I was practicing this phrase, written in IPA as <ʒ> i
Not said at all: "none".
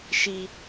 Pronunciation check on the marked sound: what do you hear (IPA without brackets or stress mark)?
ʃ